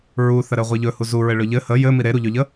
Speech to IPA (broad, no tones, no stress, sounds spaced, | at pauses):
ɹ u θ ə ɾ ɘ ʁʷ i ʎ ɵ h u z u ɹ ɘ ɭ ɵ ʎ ɘ h ə j ɘ m i ɾ e ɾ u ʎ ɵ ʎ ə